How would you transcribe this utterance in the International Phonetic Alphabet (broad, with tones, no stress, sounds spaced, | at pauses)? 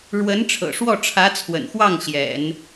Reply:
ɻ w ə˧˥ n ʈ͡ʂʰ ɤ̰˨˩ ʂ w ɔ˥˩ ʈ͡ʂʰ ä˧˥ t͡sʰ w ə̰˨˩ n x w ɑ˥˩ ŋ ɕ j ɛ̰˨˩˦ n